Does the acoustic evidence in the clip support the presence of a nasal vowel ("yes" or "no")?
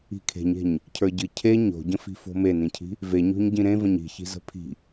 yes